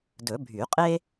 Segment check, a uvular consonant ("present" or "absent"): present